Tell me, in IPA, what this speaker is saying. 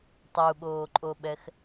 tˤuɠoːǃʼoɓɛx

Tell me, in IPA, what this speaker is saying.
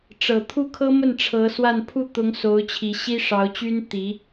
ʈ͡ʂɤ˨˩ t̪ʰu˥˩kʰɤ˥mə˥˩n ʈ͡ʂʰɤ˧˥swa˥˧n pʰu˥˩t̪ʊ˧˥ŋ so˧˥ʊ̯t͡ɕʰi˧˥ ɕi˥ʂɑ˧˥ʊ̯t͡ɕy˥n t̪i˧˥

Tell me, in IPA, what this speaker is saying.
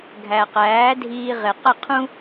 ɡʱæ˩qæː˩˥dʱiː˧ ʁɪ˩qə˥˩ qʰũ˥

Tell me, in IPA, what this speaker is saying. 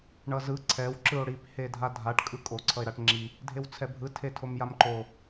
ɳʌzɯ ǀʰɛw ǁɯo̯ɽip hedʱadʱaʈ kʼɯkʼo ǀʰʌe̯ɾaʈ ŋ͡ǁi | dʱewt͡sʰɛbʱɯ tʰetʰomjamǃo

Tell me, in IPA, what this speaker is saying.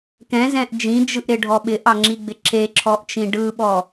kɛ̃zɛ̃ʔ d͡ʒĩd͡ʒɯʔɾɪɖʱɔ ɓɪʔɑŋ͡ǁiɡ͡bɪ ǁeǁʰɔʔt͡ʃĩ ɖɯɓɔ

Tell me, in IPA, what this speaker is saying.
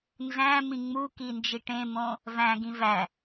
nzæ̃ mĩŋ͡muki nd͡ʒiʈẽmõ | væ̃ɡĩ væ

